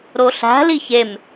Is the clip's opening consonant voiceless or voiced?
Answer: voiced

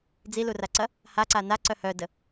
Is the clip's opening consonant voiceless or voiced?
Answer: voiced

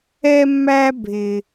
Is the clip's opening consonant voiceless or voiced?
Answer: voiced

